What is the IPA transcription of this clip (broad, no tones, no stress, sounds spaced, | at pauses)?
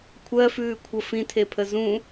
kʷʰ ɜ f ʉː kʷʰ ə f ĩ tʰ e pʰ ə z ũ